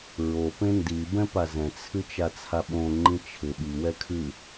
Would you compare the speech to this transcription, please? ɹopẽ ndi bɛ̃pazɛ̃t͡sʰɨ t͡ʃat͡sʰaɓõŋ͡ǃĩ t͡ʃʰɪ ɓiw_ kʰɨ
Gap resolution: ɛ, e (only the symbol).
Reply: ɛ